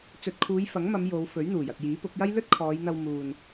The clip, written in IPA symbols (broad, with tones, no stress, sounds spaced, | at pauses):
t͡s ɵ˨ t̚ kʰ uː˨˧ j f ɐ˨˥ ŋ m ɐ˨˧ m j o˨˧ w f ɵ˨˥ ɥ n̪ uː˨˩ j ɐ˨ t̚ j iː˨˥ p ʊ˨˥ k̚ j ɐ˥ j l ɵ˥ t̚ kʰ ɔː˨˧ j n̪ ɐ˧ w m uː˨ n